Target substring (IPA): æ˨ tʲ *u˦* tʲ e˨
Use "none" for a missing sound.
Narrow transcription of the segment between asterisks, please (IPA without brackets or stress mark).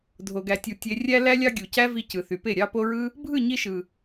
u˨